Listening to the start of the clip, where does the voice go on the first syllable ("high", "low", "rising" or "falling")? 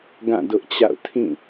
falling